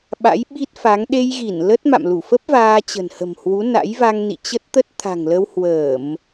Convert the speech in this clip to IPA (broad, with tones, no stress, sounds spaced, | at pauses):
ɓ a̰˧˥ j ɓ i˦˥ t̚ f a˨˦ ŋ ɗ e˧ j ɣ i˧˩ n l ə˦˥ t̚ m a̰˧˨ m l u˧˩ f ə˦˥ p̚ v aː˧ t͡ɕ ə̤˨˩ n h ə̤˨˩ m h w u˨˦ n a̰˧˥ j v a˧ ŋ n ḭ˧˨ t͡ɕ ə˦˥ t̚ t̪ ə˦˥ t̚ t̪ʰ a̤˨˩ ŋ l ə˧ w h w əː˧˩˨ m